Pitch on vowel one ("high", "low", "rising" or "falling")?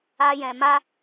high